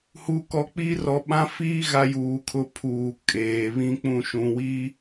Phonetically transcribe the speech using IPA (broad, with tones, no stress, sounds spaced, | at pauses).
h u˨ k ɔ˨ k͡p i˦ r ɔ˨ ɓ ã˦ f iː˦ ɣ a˦ j uː˨ kʰ ʊ˦ pʰ uː˨ kʼ eː˨ β ĩ˦ k͡p ũ˦˨ ʃ ũ˨ w i˦